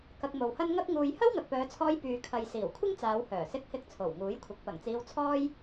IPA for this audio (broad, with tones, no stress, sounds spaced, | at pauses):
k ɐ˧ k̚ m o˨ w h ɐ˥ n ŋ ɐ˥ k̚ ŋ uː˧ j h ɐ˥ w ŋ ɐ˨ k̚ p œː˨˧ t͡sʰ ɔː˧ j p yː˨ kʰ ɐ˨ j s iː˨˩ w kʷʰ ɪ˥ ŋ t͡s aː˨˧ w h œː˨˩ s ɪ˧ k̚ h ɪ˧ k̚ t͡sʰ o˨˩ w ŋ uː˨˥ j kʷʰ ɪ˨˥ k̚ p ɐ˨˩ ŋ t͡s iː˧ w t͡sʰ ɔː˥ j